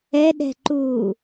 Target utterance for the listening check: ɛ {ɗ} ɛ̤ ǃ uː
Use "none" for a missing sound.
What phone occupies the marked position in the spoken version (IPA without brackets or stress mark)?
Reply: ɗ